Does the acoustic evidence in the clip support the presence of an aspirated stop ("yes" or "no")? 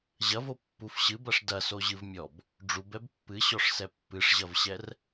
no